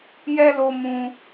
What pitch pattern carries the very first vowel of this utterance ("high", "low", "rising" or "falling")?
high